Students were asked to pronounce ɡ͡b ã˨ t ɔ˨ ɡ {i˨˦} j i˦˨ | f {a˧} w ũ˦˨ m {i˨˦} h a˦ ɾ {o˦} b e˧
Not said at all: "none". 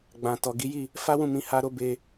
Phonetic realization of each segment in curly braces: i˨˦, a˦, ĩ˨˦, o˦

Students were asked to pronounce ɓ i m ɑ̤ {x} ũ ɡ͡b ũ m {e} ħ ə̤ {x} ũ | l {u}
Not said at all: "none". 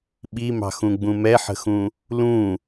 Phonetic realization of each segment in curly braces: x, ɛ, x, ũ

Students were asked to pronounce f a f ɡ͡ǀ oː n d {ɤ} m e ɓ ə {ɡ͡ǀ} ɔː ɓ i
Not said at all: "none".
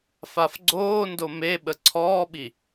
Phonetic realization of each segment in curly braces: o, ǀʰ

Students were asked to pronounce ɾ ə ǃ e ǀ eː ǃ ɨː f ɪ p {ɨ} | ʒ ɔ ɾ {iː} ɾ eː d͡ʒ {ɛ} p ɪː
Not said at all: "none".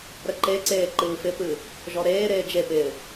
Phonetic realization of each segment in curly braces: ɨ, eː, e

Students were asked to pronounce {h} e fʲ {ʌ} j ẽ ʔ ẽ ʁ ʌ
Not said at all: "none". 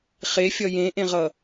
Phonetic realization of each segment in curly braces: χ, ʌ

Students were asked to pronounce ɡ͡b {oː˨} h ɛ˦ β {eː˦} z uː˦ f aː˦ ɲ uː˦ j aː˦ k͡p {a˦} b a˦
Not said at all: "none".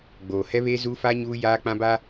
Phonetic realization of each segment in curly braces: oː˨, eː˦, ã˦

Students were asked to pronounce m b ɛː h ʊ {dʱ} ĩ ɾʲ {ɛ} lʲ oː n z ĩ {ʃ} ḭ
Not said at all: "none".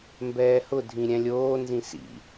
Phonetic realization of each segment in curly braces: dʱ, ɛ̃, s

